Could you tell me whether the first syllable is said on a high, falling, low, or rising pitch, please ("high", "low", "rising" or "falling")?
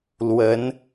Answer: rising